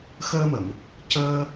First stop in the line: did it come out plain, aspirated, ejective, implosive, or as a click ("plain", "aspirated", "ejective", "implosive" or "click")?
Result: plain